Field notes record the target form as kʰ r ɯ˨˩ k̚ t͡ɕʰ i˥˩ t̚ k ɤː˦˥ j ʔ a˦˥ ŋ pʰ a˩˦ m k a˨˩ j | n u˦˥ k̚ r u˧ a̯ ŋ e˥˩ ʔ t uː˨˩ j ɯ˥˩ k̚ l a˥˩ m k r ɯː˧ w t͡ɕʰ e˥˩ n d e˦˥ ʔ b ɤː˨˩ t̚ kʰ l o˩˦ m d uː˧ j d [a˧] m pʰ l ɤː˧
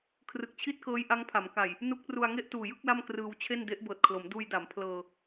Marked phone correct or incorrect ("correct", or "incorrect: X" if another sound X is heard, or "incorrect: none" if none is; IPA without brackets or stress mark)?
incorrect: a˩˦